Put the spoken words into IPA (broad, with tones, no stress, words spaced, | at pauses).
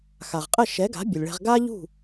xa˩ʁqʼə˥˩ ʃɛ˩˥ɡa̤˩˥ bʲɘ˩lʲɭɛ̤˧ʁ ɡa˥ʎṳ˥˩